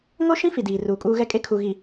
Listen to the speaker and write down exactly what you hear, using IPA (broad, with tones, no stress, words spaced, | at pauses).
ŋo˦ʃĩ˦ fi˨diː˨ruː˨kʼuː˦ ɣɛ˦kʼe˦kʰu˨ɣi˨